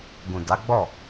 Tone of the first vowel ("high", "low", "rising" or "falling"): low